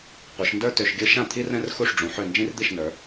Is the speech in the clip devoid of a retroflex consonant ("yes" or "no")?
no